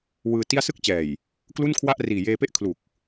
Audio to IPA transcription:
w ɯː˧ t i˥˩ a̯ s ɯ˦˥ k̚ t͡ɕ ɛː˨˩ j | k l u˥˩ n kʰ w a˥˩ ʔ r iː˨˩ j eː˧ p e˥˩ ʔ kʰ l u˨˩ k̚

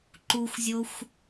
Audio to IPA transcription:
ǃ u xʷ zʲ o xʷ

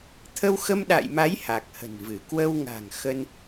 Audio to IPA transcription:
t̪ʰ ə˧ w x ə˧ m ɗ a̰˧˨ j m a˨˦ j h a˨˩ k̚ h ə̤˨˩ n v ɨ˧˩ k w ə˧ w ŋ a̤˨˩ ŋ x ə˧ n

